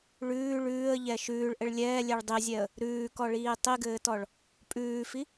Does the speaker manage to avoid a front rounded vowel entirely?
yes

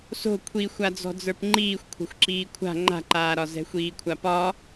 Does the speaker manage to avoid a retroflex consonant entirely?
yes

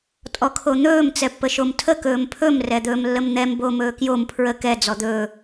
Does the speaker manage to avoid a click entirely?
yes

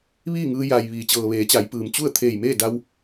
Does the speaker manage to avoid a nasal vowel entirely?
yes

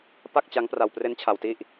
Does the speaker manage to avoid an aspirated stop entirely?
no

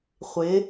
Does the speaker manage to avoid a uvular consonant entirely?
no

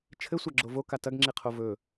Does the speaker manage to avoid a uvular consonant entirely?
no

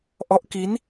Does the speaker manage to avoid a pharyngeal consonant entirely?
yes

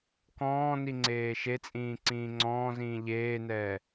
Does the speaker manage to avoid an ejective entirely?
no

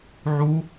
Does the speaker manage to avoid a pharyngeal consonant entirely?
no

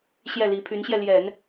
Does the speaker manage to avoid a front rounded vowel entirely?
no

